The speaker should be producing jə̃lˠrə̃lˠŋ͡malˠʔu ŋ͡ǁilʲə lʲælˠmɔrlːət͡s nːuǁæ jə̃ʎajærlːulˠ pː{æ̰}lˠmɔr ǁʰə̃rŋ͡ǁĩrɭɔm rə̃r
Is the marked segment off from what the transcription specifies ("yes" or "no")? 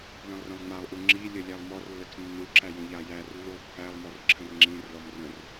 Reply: yes